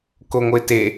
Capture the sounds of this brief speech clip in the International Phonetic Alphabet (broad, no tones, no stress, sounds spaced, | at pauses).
k o ŋʷ ə ɪ̯ t e